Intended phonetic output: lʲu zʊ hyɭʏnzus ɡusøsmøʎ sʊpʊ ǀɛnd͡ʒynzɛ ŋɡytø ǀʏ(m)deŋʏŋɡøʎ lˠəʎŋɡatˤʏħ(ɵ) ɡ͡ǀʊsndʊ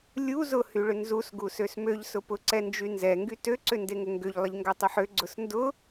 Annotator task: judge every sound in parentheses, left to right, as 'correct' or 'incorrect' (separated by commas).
incorrect, incorrect